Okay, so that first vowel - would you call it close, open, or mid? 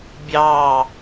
open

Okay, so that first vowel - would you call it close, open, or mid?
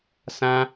open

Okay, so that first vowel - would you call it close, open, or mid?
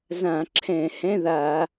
open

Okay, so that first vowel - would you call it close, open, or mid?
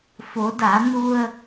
mid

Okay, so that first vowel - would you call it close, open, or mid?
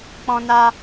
mid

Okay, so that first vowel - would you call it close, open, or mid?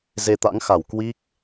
mid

